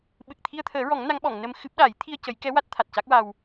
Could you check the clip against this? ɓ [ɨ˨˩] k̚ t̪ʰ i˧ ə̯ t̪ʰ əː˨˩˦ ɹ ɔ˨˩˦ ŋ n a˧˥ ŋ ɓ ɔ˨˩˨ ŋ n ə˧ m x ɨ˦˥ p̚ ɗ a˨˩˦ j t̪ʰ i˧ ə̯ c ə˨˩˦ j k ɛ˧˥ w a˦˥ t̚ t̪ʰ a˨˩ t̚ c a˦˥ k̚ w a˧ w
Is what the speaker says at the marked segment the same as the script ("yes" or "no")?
yes